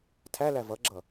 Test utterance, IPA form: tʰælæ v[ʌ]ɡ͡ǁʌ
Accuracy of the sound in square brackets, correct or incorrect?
correct